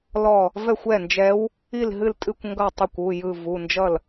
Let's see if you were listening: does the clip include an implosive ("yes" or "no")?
no